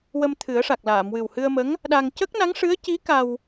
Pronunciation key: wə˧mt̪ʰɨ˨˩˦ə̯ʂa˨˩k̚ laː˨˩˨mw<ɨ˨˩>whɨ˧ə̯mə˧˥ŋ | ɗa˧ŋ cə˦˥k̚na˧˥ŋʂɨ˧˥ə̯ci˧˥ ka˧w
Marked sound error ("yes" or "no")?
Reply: no